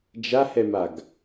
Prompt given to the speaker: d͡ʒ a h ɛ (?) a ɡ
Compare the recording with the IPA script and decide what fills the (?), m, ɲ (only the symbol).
m